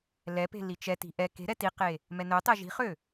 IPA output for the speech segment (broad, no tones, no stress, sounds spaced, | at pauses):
l ɛ p e̤ l i t͡ʃ ɛ t i̤ ʔ ɛ k e̤ ɾ ɛ t i q e | m ɛ n œ tˤ ɛ ʒ i̤ χ ø